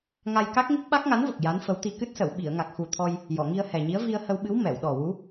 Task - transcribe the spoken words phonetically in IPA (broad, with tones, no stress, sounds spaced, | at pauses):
ŋ a˧ j k a˦˥ k̚ ŋ i˦˥ k̚ ɓ a˦˥ k̚ ŋ a˧˥ n v ə˨˩ k̚ j a˧˥ n f ə˧˥ w t̪ i˧ k ɨ˦˥ t̚ s ə˨˩˨ w ɓ i˨˩˨ ə̯ ŋ a˨˩ k̚ x u˨˩ t̪ʰ ɔ˧ j | j ɔ˨˩˨ ŋ i˧ ə̯ h ɛ˨˩ ɲ i˧˥ ə̯ v i˧ ə̯ h ə˧ w ɓ ɨ˧˥ w m ɛ˨˩˨ w ɗ ɔ˨˩ w u˧˥